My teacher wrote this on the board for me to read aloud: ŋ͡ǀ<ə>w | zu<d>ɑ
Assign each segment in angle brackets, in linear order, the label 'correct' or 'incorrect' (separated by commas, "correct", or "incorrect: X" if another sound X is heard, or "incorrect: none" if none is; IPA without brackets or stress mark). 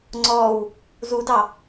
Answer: incorrect: ɔ, correct